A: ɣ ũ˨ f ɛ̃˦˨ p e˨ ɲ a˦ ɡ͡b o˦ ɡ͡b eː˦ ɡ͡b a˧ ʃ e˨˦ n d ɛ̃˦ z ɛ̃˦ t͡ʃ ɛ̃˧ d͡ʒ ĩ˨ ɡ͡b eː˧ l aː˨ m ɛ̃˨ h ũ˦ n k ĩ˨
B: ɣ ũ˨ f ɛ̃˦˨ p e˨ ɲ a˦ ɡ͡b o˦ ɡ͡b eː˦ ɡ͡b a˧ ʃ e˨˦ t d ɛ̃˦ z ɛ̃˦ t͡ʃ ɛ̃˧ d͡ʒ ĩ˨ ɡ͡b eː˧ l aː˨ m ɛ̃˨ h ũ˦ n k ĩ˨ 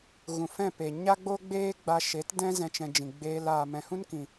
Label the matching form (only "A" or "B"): B